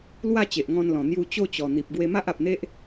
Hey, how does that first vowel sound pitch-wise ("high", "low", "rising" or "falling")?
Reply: falling